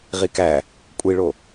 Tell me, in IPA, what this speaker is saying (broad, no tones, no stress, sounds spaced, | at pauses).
ʁ i k æ | kʷʼ i ɭ o